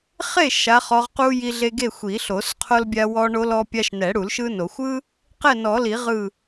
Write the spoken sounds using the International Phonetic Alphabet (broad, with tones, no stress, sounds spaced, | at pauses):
χ e˥˨ ʃ a˨˦ χ ɔ˨˦ ʁ q u˦ j i˦ ɮ e˦ ɡ e˥˨ xʷ i˨˩˦ ɬ o˨˩˦ s qʰ o˦ l bʲ a˦ w ɔ˦ ɳ o˦ l ɔ˦ pʲ a˦ ʃ n ɛ˨˩˦ ɽ u˨˩˦ l ʃ ɯ˦ n o˨˩˦ xʷ ɯ˦ | q ɛ˥˨ n ɔ˨˩˦ l i˨˩˦ ʁ ɯ˥˨